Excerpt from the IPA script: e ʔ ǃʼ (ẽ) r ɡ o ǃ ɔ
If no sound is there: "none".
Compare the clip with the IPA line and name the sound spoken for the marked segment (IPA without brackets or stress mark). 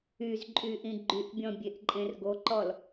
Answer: ẽ